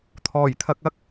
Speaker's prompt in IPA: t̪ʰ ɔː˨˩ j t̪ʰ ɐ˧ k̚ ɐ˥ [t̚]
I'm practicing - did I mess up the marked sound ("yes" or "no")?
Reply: yes